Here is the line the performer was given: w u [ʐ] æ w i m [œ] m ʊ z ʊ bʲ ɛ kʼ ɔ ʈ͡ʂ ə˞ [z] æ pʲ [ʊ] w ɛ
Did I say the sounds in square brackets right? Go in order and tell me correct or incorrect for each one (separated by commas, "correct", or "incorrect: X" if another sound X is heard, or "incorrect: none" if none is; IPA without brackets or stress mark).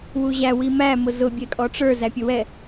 incorrect: ʑ, incorrect: æ, correct, correct